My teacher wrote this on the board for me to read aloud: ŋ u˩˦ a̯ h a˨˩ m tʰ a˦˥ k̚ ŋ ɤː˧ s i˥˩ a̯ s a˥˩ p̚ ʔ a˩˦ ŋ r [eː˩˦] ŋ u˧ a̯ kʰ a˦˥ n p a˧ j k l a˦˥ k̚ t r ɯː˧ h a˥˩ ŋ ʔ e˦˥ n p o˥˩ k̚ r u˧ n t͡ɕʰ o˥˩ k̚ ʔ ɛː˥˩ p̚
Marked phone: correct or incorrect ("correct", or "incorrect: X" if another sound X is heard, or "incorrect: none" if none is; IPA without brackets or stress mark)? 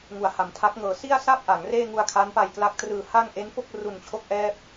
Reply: incorrect: eː˥˩